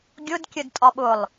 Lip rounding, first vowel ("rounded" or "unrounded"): rounded